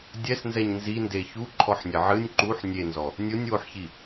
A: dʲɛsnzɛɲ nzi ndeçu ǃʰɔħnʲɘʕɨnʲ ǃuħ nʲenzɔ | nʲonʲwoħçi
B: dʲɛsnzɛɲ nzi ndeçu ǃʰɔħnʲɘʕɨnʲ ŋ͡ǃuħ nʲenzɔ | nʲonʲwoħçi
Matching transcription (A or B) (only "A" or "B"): A